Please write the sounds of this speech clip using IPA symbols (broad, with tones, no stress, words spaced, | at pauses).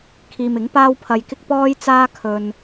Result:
kʰiː˧mɪ˨˥ŋ paː˥wpʰɐ˧jkɪ˥k̚ pɔː˥jt͡saː˥kʰɵ˧n